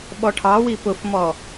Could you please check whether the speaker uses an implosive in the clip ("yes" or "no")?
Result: yes